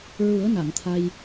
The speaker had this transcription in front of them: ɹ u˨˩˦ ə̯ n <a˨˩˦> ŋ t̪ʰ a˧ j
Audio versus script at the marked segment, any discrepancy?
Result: yes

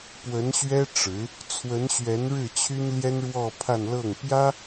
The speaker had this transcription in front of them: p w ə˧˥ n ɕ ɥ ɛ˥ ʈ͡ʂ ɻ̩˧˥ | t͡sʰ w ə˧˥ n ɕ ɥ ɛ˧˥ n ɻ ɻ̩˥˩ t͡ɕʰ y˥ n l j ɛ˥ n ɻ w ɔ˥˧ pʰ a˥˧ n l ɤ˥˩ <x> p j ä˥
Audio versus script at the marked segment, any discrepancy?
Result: yes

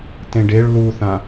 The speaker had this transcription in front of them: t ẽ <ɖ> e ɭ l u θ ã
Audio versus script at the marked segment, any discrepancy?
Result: no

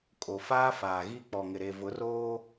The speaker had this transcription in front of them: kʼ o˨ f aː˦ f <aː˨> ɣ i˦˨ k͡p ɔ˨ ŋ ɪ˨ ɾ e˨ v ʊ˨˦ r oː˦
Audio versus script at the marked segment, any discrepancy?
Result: no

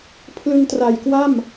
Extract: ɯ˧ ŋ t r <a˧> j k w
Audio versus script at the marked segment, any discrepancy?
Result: yes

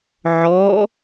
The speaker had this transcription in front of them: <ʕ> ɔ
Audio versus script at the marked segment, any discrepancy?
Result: no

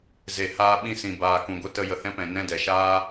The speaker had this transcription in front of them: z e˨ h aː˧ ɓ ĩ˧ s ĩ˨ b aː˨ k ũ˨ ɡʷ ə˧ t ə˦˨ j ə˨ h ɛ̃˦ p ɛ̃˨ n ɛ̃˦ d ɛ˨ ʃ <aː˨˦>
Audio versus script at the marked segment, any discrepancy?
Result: yes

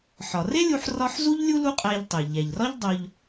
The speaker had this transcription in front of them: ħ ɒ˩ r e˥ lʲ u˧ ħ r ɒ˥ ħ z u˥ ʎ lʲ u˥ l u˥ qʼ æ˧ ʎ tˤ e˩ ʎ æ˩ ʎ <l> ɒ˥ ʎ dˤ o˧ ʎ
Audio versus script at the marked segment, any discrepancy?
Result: yes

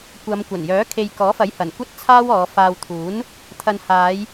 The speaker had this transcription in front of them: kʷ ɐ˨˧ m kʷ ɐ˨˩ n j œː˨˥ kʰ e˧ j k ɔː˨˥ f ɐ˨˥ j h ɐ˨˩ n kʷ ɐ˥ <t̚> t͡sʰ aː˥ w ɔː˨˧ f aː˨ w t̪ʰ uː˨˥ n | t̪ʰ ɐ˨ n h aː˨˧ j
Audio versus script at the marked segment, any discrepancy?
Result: no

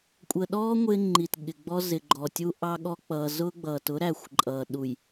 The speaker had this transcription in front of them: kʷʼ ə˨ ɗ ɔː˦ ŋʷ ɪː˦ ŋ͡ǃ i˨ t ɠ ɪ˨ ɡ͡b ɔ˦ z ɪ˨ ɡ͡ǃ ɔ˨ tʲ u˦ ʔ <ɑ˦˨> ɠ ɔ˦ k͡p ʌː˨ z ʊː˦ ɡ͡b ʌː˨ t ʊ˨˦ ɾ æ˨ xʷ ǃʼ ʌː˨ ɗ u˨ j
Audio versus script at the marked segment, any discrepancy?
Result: yes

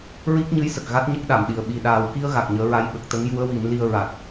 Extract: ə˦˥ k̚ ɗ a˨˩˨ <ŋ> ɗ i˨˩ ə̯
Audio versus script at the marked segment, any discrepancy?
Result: yes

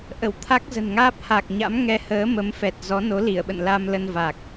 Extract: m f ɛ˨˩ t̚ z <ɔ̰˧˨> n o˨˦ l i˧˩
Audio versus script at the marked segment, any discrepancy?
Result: yes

